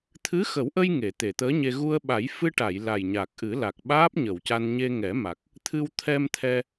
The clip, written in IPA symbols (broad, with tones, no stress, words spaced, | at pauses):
t̪ʰɨ˧˥xə˨˩˦wʔə˧j ŋe˨˩˨t̪e˨˩˨t̪əː˧˥ɲe˧ ɣu˧ə̯ɓa˨˩˦j fɨ˧ʈa˨˩˨j la˨˩jɲa˨˩k̚ʔɨ˨˩˦ la˨˩k̚ ɓaː˦˥p̚ɲə˨˩˨wca˧n ɲe˧ŋɛ˨˩˦ma˨˩k̚ | t̪ʰɨ˧wt̪ʰɛ˧mt̪ʰɛ˧